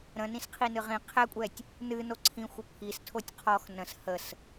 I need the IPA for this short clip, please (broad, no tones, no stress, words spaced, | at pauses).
ɾə̃nĩsqʰi nɨʁĩ qʰɛkʷʼɛtʲ | nɨ noǀʰĩ xʷəpʰistʰotʲ qʰɔx nə̃s həs